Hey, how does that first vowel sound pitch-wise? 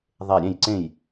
falling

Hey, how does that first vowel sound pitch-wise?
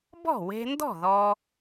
falling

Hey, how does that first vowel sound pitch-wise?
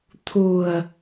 low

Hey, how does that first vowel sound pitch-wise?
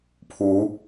rising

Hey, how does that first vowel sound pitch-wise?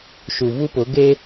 low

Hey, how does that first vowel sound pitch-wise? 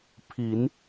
low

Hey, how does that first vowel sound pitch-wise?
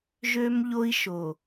high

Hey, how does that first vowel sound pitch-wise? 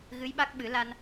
rising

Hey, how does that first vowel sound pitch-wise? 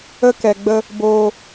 high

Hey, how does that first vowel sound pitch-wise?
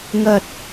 low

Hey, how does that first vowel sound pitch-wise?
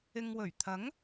low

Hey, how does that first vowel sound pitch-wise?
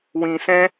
low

